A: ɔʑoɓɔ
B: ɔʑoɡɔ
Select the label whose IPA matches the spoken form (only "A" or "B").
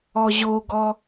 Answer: B